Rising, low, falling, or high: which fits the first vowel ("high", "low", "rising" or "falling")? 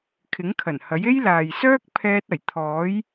rising